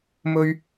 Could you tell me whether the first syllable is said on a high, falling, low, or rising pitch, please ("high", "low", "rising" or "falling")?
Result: high